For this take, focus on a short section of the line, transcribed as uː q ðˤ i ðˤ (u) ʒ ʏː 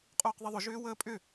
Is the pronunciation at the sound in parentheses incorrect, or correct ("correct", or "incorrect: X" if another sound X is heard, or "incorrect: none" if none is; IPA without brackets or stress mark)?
incorrect: ʏ